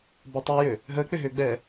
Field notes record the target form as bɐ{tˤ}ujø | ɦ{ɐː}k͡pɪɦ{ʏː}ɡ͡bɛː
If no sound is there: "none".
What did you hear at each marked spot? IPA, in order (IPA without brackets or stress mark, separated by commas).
tˤ, əː, ʏː